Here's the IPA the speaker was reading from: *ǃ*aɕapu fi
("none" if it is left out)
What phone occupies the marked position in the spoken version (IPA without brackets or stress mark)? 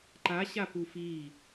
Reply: ǃ